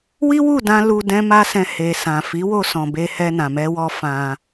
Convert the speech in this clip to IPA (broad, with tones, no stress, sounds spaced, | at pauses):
w i˦ w u˦˨ d ã˧ l u˧ d ɛ̃˦ m a˦ s ɛ̃˧ h e˨ s ã˨ f i˨˦ w o˧ s ɔ̃˨ b e˧ h ɛ˧ n ã˨ m ɛ˧ w ɔ˧ f ã˧